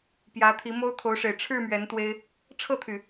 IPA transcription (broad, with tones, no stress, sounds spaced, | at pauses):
p j ä˨˦ t̪ʰ i˨˦ m o˦ ʊ̯ t̪ʰ o˨˦ ʊ̯ ʂ e˨˩ ɪ̯ ʈ͡ʂʰ ɻ̩˥˨ m ɥ ɛ˨˦ n t̪ w e˦ ɪ̯ | ʈ͡ʂʰ ɤ˥˨ t̪ʰ y˨˩